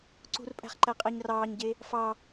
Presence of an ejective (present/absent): present